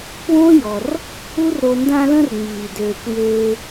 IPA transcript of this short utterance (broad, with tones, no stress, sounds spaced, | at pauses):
k w õ˦ j ɔ˧ r | u˦ r ɾ o˧ n d ã˧ l ə̃˧ r ŋ͡m iː˨ d øː˨ kʷ j eː˧